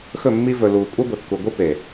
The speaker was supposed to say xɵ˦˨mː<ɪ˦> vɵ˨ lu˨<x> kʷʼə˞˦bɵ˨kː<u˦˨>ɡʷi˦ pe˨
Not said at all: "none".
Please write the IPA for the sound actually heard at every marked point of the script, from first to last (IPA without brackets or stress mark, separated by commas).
i˦, none, u˨